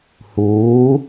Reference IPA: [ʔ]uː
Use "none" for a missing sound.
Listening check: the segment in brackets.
h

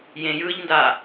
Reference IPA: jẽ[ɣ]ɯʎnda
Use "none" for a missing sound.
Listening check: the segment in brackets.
j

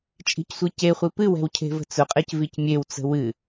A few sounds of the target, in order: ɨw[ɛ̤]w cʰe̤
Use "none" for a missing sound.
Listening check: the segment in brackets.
ɛ̤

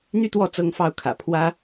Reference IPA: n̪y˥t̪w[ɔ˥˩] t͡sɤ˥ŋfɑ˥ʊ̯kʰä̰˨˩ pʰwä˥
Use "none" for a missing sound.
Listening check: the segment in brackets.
ɔ˥˩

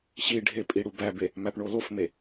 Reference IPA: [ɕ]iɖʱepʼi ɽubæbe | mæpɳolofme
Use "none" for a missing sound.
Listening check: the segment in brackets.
ɕ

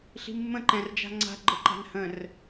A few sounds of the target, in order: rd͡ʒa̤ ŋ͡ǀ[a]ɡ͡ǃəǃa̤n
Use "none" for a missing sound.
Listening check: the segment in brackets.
a̤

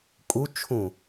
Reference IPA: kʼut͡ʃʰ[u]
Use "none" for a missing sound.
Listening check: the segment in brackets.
ũ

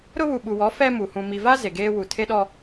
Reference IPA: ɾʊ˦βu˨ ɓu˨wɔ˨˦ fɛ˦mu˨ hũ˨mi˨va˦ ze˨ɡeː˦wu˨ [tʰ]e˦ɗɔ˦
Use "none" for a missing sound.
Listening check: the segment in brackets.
tʰ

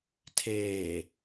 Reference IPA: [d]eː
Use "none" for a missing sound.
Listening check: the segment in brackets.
tʰ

